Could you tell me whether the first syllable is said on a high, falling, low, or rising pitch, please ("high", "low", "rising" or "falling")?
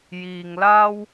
low